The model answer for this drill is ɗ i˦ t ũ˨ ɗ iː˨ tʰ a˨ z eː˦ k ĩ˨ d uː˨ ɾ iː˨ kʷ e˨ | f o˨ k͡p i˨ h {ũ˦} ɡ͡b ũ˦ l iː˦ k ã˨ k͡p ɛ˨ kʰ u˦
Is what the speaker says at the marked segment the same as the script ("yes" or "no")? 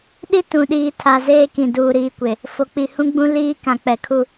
yes